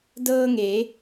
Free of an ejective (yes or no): yes